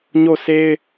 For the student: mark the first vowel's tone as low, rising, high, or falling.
falling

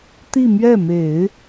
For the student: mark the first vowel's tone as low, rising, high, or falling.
falling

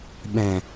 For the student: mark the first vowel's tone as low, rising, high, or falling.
low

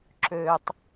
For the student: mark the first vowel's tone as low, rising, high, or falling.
low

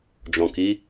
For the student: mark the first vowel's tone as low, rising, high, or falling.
low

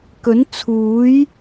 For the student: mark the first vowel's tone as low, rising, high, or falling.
rising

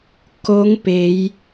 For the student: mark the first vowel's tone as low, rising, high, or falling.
rising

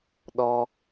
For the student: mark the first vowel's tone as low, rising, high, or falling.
high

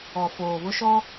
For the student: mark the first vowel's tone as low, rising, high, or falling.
low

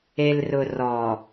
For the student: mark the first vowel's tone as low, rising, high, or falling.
low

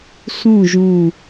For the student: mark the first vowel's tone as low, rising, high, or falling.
falling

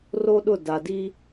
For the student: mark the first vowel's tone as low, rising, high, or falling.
high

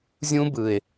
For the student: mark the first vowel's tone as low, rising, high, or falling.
high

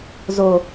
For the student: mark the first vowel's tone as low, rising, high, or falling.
low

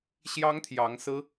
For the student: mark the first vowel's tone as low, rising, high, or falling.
high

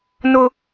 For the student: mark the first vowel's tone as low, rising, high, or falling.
high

